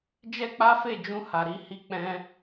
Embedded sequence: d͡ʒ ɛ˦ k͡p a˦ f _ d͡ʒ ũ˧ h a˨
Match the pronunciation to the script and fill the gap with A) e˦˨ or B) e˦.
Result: A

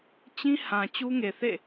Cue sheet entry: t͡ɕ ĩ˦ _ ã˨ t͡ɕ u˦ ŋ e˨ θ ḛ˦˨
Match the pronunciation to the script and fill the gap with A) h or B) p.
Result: A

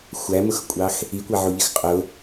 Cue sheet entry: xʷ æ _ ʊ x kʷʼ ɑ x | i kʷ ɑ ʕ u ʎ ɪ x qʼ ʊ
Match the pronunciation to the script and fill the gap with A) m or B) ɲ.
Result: A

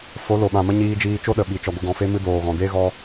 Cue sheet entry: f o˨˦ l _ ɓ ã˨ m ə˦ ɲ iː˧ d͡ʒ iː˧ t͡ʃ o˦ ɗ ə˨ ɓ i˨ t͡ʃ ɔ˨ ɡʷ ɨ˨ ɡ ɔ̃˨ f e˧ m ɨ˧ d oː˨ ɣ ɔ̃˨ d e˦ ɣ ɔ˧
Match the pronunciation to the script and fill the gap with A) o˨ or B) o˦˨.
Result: A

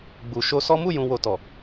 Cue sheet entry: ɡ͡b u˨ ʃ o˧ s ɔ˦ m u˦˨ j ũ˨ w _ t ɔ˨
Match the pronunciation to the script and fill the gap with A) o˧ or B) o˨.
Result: B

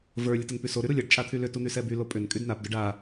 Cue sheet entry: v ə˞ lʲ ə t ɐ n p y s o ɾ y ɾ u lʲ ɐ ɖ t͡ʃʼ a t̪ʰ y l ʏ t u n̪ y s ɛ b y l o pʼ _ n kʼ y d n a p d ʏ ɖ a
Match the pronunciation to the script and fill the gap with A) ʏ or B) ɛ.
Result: A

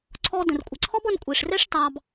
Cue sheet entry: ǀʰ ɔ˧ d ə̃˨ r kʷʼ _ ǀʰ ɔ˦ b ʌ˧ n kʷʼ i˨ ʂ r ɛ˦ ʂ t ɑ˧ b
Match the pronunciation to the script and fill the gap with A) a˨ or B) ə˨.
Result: B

